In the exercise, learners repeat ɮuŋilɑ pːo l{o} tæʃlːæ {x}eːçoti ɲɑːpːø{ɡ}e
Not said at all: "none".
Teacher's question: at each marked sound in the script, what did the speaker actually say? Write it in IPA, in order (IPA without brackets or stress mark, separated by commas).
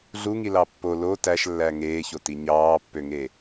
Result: o, ŋ, ŋ